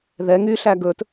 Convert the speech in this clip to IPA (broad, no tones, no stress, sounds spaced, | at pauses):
ð ɛ ŋ y ɬ æ ɡ ɵ t